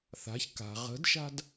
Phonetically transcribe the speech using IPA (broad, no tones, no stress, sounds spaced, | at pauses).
θ a̤ ç k a̤ ʁ ə̤ d ʃ a̤ d